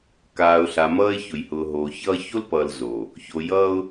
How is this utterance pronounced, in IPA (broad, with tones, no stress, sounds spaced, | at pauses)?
k aː˨ ʊ̯ ɬ a˨ m ʌː˦ ɪ̯ ç ʊ˨ j h ʊː˨ ɦ oː˨ ç ʌː˦ ç o˦ l p ʌː˨ l z oː˨ | ç o˨ j ʌː˦ ʊ̯